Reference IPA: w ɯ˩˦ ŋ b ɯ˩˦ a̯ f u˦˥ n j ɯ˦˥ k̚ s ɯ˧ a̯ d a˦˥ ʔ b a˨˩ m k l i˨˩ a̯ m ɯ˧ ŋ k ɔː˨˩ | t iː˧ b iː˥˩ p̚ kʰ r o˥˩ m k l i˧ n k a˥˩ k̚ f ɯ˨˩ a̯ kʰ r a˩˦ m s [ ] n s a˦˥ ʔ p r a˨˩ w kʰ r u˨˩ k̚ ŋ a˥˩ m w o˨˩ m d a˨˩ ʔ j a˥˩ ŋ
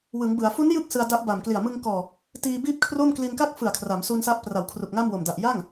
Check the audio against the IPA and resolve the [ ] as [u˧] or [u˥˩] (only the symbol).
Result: u˧